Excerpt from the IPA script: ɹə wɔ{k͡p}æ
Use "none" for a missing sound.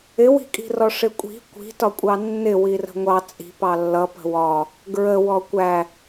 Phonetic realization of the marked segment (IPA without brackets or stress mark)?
kʷ